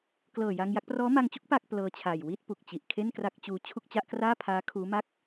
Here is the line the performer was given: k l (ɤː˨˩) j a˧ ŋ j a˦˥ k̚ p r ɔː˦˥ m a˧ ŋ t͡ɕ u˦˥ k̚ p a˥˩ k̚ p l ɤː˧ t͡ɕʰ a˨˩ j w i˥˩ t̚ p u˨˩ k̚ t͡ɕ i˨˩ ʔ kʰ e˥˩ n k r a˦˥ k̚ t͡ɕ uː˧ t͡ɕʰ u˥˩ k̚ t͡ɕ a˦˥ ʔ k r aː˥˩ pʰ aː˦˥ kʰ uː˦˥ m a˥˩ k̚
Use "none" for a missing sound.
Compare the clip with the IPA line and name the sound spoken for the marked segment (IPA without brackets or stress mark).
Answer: ɤː˨˩